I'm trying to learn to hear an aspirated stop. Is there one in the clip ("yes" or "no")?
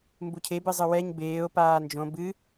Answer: yes